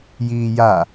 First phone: j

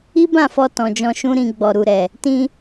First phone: i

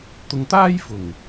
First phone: t̪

